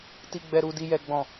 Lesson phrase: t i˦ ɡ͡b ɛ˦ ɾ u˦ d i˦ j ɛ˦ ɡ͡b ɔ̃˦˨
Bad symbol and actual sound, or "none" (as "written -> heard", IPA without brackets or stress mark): none